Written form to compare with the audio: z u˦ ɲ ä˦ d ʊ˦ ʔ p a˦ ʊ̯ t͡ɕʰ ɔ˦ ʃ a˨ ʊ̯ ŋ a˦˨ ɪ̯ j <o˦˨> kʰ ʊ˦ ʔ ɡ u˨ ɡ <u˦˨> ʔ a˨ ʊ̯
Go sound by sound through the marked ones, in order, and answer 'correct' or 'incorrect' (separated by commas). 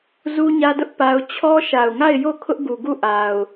correct, correct